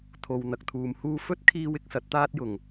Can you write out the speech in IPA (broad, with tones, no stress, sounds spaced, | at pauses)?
t̪ʰ o˨ w n̪ ɐ˨ k̚ t̪ʰ uː˨ m h uː˥ f ɵ˥ t̚ kʰ iː˧ w ɪ˨˥ k̚ s ɐ˨˥ t̚ t̪ aː˥ t̚ j ʊ˨˩ ŋ